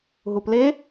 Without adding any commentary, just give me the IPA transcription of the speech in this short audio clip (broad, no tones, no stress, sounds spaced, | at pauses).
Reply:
ɦ u p l e